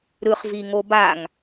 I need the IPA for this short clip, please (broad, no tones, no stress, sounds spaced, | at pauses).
ɾ ɯ χ v i ŋ o b a ŋ